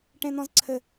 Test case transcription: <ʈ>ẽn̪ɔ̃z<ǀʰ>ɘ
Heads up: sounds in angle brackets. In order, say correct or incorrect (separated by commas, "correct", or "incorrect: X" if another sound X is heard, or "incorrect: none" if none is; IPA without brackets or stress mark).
correct, correct